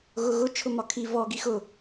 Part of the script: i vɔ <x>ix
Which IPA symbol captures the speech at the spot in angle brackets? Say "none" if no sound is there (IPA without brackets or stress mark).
ɡ